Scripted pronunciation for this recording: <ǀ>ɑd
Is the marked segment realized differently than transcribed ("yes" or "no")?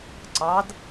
no